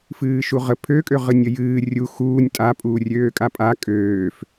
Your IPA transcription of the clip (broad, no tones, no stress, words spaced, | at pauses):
fɨːʃuʁə pʰøkʼø ʁɨnʲəjɨː rʲu xuːnʲ tʼapʼuː rʲøːkʼapʼa kʼøːf